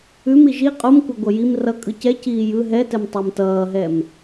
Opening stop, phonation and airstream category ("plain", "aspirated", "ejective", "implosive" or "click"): ejective